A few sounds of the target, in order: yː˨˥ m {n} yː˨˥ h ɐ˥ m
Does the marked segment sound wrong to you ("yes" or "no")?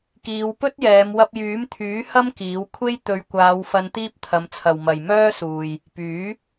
yes